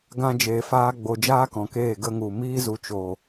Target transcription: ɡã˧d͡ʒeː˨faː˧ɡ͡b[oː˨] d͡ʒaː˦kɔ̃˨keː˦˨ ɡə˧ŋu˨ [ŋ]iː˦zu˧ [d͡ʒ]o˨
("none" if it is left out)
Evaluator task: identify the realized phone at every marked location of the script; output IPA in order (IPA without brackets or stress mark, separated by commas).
o˨, m, t͡ʃ